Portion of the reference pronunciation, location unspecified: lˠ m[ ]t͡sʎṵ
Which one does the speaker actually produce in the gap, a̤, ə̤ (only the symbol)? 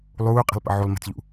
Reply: ə̤